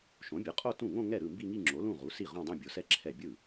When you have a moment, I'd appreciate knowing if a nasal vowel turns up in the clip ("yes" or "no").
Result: yes